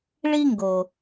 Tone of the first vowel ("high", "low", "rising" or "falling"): high